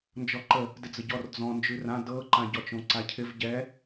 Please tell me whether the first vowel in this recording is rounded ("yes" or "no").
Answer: yes